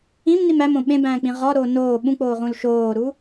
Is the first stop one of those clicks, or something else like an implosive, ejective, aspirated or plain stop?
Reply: implosive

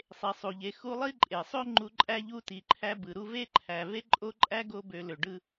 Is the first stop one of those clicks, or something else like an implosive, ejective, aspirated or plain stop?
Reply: click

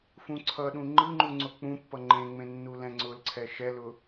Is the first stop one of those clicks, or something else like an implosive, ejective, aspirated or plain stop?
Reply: click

